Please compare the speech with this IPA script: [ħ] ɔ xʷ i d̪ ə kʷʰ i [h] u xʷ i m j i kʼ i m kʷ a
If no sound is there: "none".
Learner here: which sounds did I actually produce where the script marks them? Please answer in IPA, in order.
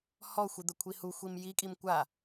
h, h

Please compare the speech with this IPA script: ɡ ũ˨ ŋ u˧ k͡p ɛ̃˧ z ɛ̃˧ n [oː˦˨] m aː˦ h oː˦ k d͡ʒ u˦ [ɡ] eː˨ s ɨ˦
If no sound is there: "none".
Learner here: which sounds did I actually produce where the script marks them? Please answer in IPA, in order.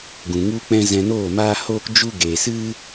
oː˦˨, ɡ

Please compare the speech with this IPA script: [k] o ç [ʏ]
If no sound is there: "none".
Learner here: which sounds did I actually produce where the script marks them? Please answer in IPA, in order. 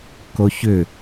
k, ʏ

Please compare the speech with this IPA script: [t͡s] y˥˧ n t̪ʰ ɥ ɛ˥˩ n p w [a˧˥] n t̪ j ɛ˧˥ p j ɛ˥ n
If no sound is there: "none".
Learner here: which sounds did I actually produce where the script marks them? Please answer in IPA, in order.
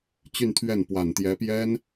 t͡ɕ, a˨˩

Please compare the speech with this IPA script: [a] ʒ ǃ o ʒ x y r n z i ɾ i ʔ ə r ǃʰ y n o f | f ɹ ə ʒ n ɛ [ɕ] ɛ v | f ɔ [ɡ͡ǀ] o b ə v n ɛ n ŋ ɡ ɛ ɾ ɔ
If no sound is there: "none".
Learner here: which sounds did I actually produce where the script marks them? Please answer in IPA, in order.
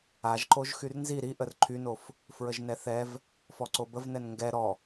a, θ, ǀ

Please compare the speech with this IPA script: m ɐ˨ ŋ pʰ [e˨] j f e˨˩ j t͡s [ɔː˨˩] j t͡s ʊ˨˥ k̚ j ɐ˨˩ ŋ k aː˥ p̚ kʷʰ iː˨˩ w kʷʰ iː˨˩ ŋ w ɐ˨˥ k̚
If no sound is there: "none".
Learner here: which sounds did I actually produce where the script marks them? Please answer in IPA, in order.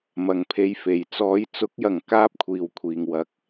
e˧, ɔː˨˧

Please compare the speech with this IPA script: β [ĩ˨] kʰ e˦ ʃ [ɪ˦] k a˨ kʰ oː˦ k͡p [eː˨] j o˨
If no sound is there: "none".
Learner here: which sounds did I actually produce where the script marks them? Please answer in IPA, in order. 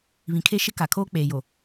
ĩ˨, ɪ˦, eː˨

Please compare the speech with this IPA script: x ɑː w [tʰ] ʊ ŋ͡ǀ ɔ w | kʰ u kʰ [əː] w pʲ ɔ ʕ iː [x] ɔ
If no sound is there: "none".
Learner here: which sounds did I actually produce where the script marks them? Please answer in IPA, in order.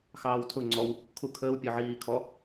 tʰ, əː, kʰ

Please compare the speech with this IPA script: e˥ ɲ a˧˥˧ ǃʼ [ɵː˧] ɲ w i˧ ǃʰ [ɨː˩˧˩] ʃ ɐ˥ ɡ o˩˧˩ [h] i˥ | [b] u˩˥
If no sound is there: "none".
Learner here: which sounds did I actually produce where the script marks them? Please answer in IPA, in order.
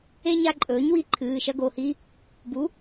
ɵː˩˥, ɨː˩˧˩, h, b

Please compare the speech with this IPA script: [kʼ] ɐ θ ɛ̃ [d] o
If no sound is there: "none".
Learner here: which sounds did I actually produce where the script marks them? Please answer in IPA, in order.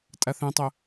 tʼ, tˤ

